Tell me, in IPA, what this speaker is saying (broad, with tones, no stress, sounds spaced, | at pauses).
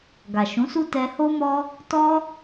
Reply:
ɡ a˨ ʃ ũ˨˦ s u˦ t ɛ˧ h o˦ m ɔ˦ | t ɔ˦